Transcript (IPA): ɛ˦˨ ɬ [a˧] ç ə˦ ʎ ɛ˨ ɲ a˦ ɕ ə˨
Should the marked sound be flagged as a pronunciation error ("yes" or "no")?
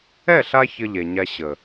no